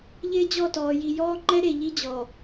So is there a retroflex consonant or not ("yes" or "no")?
no